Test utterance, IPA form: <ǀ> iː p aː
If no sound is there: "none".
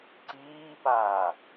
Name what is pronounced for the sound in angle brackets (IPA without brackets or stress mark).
ǀ